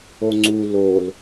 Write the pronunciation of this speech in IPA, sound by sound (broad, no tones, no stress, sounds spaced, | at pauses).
o ŋ͡ǀ u l o l